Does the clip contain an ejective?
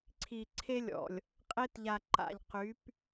yes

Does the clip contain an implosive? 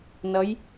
no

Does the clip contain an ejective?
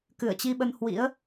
no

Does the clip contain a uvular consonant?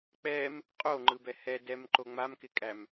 yes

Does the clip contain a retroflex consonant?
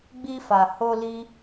no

